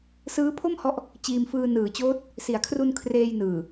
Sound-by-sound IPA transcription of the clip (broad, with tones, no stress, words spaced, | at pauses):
sɯː˦˥pʰo˥˩mhɔ˦˥ʔ | t͡ɕiː˧mfɯː˧ nɯː˩˦t͡ɕoː˦˥t̚ | si˩˦a̯kʰru˧n kʰreː˧jnɯː˨˩